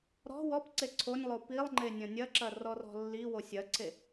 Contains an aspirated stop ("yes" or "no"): yes